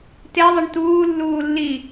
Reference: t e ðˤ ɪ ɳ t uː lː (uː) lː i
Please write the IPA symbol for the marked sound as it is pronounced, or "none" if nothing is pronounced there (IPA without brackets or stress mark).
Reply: uː